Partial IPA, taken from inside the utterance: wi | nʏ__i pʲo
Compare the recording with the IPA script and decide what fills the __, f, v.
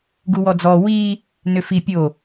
f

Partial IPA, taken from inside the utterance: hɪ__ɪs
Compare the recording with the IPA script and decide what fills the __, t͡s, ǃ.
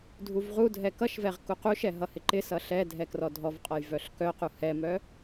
ǃ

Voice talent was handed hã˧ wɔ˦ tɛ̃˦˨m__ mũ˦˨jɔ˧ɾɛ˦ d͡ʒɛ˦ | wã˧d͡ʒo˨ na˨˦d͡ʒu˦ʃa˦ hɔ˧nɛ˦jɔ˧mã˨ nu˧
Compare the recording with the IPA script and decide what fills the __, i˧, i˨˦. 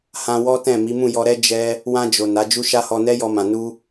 i˨˦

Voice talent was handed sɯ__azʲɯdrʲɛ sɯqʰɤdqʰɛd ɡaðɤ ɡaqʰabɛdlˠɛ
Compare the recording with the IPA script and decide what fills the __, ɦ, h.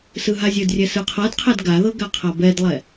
ɦ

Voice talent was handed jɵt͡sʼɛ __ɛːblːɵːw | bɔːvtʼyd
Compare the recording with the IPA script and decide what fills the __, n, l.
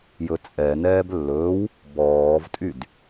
n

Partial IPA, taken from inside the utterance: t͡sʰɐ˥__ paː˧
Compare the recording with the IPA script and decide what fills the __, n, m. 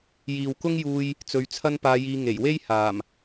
n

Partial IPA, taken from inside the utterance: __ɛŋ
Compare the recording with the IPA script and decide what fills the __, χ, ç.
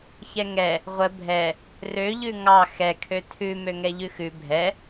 ç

